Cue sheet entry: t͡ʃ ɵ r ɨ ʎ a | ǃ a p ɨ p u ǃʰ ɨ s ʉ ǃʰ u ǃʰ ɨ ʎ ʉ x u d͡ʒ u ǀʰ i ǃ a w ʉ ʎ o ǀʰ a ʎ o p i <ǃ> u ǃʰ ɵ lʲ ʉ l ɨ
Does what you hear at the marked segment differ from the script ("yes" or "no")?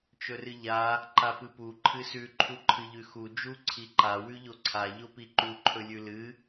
no